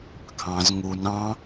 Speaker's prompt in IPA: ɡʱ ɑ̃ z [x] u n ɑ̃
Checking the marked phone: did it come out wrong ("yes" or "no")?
yes